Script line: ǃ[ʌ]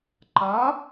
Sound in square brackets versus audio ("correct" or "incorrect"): incorrect